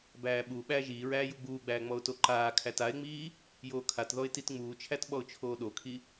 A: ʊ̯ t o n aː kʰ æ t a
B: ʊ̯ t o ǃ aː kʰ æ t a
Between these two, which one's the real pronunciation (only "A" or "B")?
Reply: B